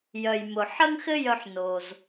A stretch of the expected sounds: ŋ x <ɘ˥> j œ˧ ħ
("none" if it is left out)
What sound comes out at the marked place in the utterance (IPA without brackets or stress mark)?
ɘ˥